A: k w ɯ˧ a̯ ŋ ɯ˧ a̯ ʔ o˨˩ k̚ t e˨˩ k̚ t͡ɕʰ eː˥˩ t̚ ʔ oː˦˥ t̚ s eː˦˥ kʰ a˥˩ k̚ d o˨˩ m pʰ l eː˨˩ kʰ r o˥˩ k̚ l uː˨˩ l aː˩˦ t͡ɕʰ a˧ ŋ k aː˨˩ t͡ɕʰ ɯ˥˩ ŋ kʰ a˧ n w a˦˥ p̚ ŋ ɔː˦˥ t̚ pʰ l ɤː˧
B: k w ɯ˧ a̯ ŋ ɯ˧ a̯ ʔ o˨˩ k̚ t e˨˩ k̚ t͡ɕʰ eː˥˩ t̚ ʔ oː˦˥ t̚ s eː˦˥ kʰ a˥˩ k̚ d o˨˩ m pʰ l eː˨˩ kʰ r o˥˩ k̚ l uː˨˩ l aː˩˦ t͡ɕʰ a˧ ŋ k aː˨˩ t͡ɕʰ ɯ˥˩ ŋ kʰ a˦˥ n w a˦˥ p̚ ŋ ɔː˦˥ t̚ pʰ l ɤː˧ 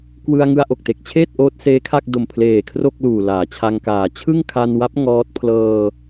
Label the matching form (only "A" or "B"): A